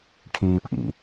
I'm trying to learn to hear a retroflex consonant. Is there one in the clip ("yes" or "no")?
yes